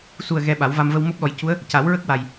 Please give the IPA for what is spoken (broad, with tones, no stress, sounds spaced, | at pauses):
s u˨˩ ə̯ ɣ ɛ˧ ɓ a˨˩˦ w v a˧ m v ə˧ w m o˦˥ p̚ ɗ ɔ˨˩ j c u˧˥ ə̯ | c a˨˩˦ w ɹ ə˦˥ k̚ w a˨˩ j